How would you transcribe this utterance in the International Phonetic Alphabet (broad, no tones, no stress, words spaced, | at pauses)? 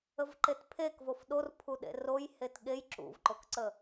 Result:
əvǃetpʰek vofɗorpʰuɗḛ rojhet ɠej ǁṵvǃokǀə